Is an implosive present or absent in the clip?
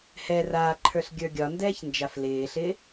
absent